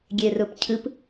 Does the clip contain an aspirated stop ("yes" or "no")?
yes